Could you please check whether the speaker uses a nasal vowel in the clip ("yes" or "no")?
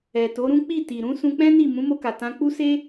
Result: yes